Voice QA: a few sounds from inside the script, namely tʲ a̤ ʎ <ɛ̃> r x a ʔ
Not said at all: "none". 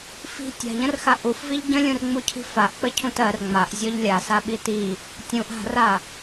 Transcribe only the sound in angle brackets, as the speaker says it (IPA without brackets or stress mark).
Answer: ə̃